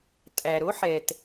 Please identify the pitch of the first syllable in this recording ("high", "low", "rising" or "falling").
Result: low